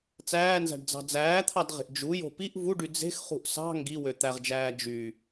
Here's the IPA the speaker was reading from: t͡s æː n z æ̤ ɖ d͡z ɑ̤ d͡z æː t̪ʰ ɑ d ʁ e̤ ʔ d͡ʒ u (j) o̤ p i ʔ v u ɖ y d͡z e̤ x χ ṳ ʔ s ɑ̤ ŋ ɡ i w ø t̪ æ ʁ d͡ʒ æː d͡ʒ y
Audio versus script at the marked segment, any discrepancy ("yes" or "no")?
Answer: no